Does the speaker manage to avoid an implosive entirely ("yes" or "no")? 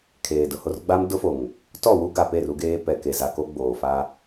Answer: yes